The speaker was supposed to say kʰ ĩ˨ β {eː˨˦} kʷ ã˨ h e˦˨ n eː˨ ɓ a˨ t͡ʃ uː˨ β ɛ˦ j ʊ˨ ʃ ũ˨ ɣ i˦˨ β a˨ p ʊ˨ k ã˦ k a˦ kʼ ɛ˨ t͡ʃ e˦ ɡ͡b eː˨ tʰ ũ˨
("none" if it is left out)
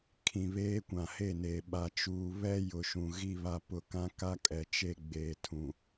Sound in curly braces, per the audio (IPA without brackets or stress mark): eː˦